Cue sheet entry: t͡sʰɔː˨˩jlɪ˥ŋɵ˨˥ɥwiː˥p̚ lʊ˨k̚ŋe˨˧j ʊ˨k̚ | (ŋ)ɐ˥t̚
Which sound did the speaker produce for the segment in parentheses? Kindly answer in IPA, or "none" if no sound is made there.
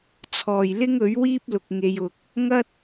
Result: ŋ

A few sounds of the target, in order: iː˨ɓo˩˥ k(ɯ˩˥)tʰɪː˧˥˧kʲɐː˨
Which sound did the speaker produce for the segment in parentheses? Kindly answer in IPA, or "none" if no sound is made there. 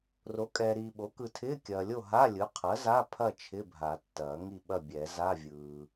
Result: ɯ˨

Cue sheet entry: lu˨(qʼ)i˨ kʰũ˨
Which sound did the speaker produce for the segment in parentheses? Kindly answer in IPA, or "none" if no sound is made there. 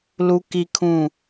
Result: k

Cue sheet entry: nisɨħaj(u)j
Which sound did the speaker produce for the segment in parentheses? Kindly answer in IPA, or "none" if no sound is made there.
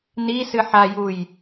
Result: u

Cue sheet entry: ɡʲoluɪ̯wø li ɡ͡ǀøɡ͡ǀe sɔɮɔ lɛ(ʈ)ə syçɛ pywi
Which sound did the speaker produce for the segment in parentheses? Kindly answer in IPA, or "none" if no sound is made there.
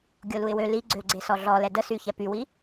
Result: d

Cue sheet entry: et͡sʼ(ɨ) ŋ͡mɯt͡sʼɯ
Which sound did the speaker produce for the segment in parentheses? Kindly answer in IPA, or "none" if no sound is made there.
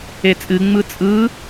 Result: ɨ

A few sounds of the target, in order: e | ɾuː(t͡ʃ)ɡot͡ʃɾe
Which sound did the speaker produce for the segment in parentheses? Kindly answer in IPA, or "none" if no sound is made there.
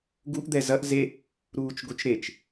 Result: t͡ʃ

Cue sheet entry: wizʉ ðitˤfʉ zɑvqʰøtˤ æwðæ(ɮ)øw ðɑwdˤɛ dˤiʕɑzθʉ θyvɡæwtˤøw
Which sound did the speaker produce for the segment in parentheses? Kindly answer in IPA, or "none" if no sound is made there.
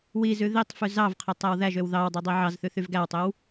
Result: ʒ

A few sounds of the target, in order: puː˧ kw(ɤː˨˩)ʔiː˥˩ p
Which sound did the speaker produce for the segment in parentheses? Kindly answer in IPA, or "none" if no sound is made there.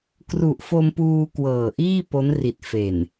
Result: ɤː˨˩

